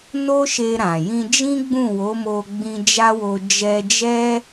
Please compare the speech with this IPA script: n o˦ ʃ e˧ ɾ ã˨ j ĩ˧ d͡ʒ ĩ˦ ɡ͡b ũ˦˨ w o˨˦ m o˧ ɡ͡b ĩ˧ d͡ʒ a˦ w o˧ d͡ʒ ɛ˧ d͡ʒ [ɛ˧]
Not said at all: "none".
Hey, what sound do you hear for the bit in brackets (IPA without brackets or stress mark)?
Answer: ɛ˦